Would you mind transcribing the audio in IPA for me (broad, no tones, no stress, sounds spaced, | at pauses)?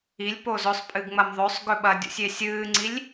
i lʲ p o z ɵ sˤ pʼ ɨ ɡ ŋ͡m ɐ m ðˤ ɵ sˤ ɡ ɵ ɓ ɐ dʲ ṵ sʲ e sʲ ɨː ŋ͡ǀ i lʲ